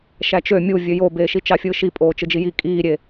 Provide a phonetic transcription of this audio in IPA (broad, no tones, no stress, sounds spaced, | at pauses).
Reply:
ʃ æ t͡ʃ ø mʲ u vʲ ø j o b eː ʃ i t͡ʃ ɑ fʲ ɯː ʃ i pʼ oː t͡ʃ ɯ d͡ʒ i j i kʼ iː ɾʲ e